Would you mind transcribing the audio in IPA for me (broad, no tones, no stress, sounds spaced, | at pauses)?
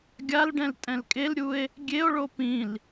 ɡʲ a l ɖ ɛ̃ l tʼ ɛ̃ l kʼ e l ɾʲ u e̯ | ɡʲ e o̯ ɭ o p ĩ l